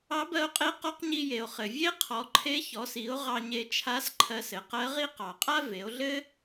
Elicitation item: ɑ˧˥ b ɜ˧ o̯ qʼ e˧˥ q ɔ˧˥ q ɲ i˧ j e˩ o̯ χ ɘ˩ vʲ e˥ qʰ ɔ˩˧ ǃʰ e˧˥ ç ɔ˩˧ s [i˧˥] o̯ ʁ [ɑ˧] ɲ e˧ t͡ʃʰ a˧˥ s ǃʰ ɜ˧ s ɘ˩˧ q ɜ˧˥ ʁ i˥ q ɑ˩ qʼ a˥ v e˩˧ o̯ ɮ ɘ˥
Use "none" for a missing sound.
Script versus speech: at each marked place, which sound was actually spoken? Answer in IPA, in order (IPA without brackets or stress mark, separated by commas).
i˩˧, ɑ˧